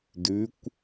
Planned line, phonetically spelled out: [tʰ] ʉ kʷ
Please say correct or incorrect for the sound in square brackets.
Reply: incorrect